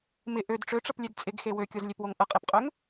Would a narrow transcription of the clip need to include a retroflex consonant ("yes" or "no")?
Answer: yes